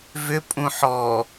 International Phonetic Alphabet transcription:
vʏ pʼũħɔ

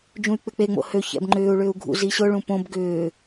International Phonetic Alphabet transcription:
d͡ʒũy̯k͡pʏk͡pe ŋ͡mo̰hø çɛ̰bŋ͡ǃʏːu̯ ɭʏːu̯ɡʱṵ ziɕʊ ɭũpõb ɡʏː

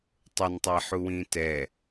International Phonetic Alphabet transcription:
tˤʊntˤɛħuwĩ tɛ

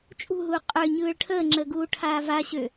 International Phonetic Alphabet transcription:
t͡ʃʼṳɦuː qʼə˞ɲɯːɭ ʈʰəːŋ͡ǁəːɡuːʈʰaː vaɕø

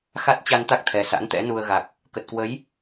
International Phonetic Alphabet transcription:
xa˦˥t̚t͡ɕa˧nt̪a˦˥k̚t̪ʰɛ˨˩ sa̰˧˥nt̪ɛ̰˧˥nu˧ə̯ ɣa˨˩k̚ | kə˨˩t̚kwə˨˦j

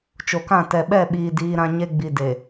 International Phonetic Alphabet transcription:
t͡ʃo˨kã˦˨ tɛ˨ɓɛ˦˨ɓiː˨ diː˦ɾã˦ ɲe˦ɡ͡bi˨de˨

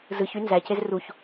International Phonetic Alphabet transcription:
zɯçy nzæcez ruç

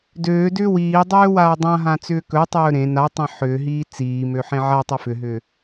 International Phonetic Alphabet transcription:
døːdʏː wiːdˤøːwaː dˤãɦãt͡sʏː kɵtˤɵː ɾẽ natˤẽ ħʏːɦiː t͡siːmøħẽ ʕatˤɵ fʏɦʏː

